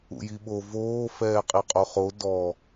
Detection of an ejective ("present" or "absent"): present